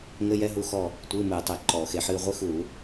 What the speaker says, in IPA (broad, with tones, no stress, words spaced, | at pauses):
ŋɘ˧˥˧jɛ˧˥˧ɦu˦˨xɔ˦˨ | tʷɨː˧˥˧ mɨː˧˩˧tˤɛ˧˩˧ ǃɔː˧˩˧xe˧˩˧ ħɨː˦˨ ʁʷɨ˧˥˧xuː˧˩˧